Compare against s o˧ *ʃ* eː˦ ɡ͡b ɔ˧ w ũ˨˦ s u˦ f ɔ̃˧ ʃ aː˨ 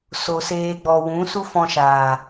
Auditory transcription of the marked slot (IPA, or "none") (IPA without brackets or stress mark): s